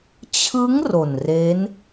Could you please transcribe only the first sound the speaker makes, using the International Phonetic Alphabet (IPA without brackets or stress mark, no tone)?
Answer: t͡ɕʰ